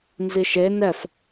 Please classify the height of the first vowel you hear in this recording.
high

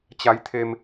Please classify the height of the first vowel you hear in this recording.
low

